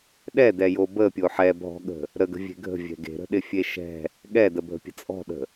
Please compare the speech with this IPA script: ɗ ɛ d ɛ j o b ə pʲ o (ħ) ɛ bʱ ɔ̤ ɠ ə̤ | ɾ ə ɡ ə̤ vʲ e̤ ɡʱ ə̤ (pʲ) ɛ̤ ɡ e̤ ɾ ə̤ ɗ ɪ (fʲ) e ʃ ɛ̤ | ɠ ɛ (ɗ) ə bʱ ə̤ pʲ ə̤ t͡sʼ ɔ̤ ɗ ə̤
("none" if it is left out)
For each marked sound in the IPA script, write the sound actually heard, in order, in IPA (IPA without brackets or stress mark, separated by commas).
ħ, vʲ, fʲ, d